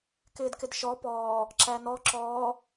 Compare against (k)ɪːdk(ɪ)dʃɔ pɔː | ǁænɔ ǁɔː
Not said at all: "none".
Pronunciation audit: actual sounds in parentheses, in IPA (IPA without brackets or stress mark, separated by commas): k, ɪ